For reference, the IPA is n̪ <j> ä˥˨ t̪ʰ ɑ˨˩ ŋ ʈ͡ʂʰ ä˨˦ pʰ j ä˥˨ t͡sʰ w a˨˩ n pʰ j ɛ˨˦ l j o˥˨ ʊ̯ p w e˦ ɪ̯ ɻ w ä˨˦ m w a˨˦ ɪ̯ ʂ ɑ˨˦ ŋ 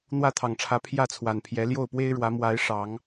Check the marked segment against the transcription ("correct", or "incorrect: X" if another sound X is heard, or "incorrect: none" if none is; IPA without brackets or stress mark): incorrect: w